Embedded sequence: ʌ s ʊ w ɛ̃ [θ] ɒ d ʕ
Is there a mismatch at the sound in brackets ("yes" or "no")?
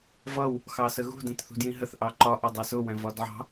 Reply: yes